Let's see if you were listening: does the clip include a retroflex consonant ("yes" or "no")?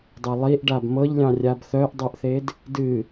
yes